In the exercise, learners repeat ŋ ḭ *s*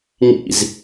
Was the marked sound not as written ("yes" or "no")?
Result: yes